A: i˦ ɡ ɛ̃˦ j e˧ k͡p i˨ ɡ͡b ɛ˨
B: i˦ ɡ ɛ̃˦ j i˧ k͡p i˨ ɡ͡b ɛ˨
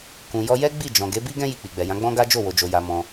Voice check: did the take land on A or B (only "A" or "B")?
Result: B